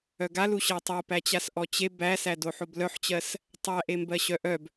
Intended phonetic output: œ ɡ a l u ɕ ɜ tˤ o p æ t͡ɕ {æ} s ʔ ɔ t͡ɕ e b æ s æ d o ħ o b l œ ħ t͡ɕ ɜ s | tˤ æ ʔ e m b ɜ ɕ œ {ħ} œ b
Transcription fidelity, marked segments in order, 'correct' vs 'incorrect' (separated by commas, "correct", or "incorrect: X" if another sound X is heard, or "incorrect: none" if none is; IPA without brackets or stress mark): incorrect: a, incorrect: ʔ